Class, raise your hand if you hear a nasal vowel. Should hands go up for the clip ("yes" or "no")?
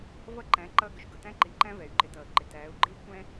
yes